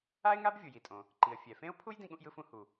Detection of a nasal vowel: present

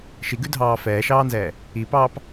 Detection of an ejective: absent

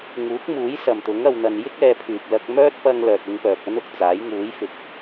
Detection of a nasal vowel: absent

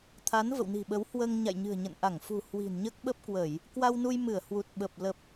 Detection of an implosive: present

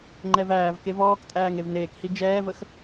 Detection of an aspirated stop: absent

